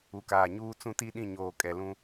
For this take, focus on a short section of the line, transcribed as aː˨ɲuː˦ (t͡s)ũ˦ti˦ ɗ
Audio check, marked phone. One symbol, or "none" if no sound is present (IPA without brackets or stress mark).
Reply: t͡s